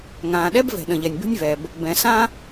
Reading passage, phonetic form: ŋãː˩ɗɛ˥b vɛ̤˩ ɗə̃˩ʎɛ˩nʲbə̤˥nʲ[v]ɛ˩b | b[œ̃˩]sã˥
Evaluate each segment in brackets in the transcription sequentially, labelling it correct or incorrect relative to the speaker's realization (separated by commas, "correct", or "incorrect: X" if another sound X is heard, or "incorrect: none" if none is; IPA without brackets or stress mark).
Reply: correct, incorrect: ɛ̃˩